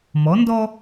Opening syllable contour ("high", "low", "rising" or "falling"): rising